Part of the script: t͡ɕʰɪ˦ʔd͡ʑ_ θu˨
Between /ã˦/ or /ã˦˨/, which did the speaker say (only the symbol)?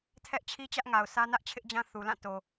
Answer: ã˦